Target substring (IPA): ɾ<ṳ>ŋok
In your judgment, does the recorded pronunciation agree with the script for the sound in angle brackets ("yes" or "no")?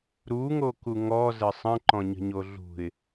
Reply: no